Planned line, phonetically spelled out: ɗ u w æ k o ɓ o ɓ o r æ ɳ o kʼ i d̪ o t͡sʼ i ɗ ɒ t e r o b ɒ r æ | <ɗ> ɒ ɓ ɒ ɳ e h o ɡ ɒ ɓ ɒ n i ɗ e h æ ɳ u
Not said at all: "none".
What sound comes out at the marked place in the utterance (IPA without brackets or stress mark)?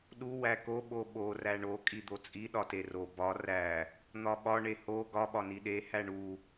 n̪